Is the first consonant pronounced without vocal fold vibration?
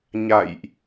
no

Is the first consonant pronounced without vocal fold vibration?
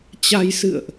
yes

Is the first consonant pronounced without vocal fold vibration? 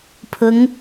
yes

